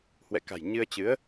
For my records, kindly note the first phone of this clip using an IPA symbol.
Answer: h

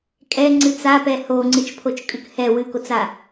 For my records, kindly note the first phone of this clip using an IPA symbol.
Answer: kʼ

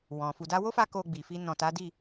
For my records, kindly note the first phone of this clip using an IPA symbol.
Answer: w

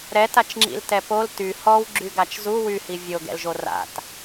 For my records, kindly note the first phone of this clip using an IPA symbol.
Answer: ɾ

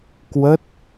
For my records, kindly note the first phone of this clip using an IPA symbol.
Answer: k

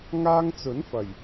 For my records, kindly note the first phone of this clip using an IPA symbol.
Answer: ŋ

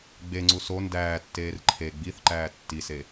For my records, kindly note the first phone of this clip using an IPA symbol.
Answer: ɡ͡b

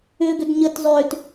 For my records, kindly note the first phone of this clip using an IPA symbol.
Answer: ʏ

